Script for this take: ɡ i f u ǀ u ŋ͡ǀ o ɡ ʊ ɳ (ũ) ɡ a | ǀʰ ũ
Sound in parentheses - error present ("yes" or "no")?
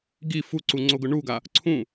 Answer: yes